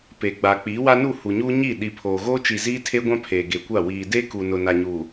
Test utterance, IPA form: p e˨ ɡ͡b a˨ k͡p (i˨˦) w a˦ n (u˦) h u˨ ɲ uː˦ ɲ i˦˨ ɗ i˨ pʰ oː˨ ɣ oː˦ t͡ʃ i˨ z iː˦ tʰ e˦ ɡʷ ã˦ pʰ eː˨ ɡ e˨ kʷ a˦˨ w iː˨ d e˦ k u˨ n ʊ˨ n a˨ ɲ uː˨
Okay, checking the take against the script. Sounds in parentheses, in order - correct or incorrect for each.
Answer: correct, incorrect: u˦˨

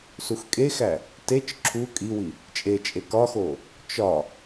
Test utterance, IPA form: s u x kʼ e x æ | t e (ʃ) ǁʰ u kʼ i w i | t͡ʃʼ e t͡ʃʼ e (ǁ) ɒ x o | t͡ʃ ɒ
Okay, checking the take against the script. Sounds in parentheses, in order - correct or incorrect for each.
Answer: incorrect: t͡ʃ, incorrect: k

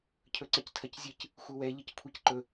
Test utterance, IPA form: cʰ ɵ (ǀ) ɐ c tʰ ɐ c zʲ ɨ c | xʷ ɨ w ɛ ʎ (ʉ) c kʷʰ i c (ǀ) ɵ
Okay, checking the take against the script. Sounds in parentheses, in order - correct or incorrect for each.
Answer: correct, incorrect: ɨ, incorrect: ǃ

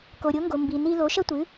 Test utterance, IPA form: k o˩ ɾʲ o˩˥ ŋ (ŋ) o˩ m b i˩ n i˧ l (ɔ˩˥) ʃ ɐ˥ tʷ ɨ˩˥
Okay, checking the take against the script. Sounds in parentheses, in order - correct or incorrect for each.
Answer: incorrect: ɡ, incorrect: o˩˥

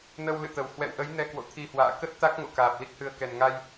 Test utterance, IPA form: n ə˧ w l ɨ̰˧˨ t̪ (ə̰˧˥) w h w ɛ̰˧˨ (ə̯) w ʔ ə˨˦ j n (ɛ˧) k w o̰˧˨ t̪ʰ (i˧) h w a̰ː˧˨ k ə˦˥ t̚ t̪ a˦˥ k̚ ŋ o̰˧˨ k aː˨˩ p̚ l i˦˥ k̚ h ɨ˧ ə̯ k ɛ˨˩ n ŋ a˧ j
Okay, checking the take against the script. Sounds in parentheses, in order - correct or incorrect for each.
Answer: incorrect: ə˨˩, incorrect: none, correct, correct

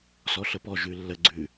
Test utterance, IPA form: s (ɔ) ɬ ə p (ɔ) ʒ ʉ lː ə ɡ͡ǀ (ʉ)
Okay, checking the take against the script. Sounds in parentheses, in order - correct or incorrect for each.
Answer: correct, correct, correct

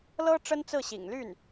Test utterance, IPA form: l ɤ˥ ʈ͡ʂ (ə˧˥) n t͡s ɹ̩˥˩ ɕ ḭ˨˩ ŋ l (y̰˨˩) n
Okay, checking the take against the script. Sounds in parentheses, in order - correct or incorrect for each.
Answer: incorrect: ə˥, incorrect: y˥˩

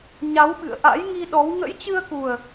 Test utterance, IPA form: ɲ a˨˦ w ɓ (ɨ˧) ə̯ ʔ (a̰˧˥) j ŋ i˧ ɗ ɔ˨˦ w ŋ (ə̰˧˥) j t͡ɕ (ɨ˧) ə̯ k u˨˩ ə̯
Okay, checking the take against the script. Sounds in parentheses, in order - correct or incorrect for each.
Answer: incorrect: ɨ̰˧˨, correct, correct, correct

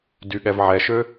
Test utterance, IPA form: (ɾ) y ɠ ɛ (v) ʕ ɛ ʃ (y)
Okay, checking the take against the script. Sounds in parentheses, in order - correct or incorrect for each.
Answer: incorrect: d, correct, incorrect: ø

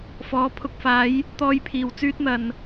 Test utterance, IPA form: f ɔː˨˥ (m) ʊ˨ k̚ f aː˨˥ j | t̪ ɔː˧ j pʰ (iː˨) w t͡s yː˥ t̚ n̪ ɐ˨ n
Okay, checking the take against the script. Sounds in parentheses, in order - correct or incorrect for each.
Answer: incorrect: pʰ, correct

